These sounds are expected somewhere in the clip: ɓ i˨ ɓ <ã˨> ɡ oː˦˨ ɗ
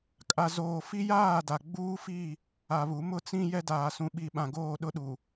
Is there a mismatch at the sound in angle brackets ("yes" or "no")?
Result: no